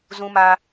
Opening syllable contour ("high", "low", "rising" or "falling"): high